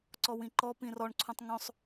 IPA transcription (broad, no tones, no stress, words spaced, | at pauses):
ǀɔwĩǃɔ pĩrɔɳ ǀʰũtˤŋõsˤ